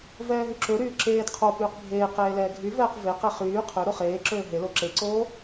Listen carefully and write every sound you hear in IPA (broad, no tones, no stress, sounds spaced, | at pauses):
v ɛː ɦ y ǁ ø ɾ yː ǁ eː d qʰ o p yː q bʱ eː q eː l ɛː ɡʱ y v ɛː q v e q e χ yː qʰ ø ɾ o χ eː ǁ øː ɦ e l o ǁ e ǀ oː